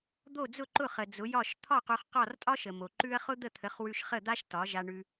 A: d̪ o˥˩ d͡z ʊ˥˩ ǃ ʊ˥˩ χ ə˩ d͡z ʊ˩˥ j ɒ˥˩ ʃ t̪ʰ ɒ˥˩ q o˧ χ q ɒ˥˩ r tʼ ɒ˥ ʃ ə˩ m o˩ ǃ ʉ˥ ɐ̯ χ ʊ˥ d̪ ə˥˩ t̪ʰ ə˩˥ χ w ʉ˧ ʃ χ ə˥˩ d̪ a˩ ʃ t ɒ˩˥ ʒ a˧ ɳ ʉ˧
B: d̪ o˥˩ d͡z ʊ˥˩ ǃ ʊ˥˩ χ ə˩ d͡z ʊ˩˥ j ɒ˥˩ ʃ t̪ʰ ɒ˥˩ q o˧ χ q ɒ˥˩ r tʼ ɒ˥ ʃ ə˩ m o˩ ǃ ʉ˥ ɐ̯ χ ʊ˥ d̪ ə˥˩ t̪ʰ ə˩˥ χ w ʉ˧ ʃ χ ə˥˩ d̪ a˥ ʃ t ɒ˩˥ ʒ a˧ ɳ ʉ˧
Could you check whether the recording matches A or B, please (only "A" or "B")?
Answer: B